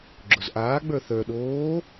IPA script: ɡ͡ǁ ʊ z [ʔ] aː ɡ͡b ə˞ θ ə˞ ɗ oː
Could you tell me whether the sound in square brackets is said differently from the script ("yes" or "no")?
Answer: no